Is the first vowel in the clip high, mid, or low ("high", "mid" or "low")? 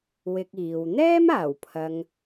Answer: high